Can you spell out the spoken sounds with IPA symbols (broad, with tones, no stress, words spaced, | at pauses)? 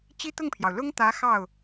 t͡ɕi˥t̪ʊ˥˩ŋpʰjɑ˩ʊ̯ lʊ˥ŋt̪ä˧˥ xɑ˥˩ʊ̯